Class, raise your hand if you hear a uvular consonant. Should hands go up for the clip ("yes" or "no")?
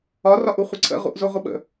yes